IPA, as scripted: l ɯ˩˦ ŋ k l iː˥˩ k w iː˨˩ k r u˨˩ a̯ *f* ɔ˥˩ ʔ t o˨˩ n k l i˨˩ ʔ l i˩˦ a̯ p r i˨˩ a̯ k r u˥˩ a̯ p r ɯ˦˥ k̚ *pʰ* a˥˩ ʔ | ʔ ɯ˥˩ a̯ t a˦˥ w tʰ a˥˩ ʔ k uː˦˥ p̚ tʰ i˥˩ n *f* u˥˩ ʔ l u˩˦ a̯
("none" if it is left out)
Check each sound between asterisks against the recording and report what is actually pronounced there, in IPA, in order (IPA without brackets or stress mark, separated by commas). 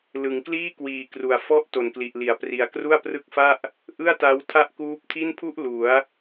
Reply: f, f, pʰ